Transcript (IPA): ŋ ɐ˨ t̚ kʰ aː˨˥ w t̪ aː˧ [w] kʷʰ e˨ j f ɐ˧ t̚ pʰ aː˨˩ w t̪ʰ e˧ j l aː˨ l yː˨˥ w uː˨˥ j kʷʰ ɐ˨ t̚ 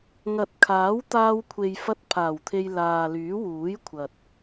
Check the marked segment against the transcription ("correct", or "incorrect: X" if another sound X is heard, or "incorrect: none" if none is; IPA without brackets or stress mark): correct